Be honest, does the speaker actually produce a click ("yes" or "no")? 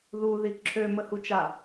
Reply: yes